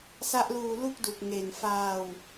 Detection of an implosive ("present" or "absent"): absent